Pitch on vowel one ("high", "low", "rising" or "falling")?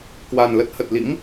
low